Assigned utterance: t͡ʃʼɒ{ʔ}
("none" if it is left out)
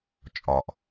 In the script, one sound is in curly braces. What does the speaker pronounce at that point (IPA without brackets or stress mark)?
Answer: ʔ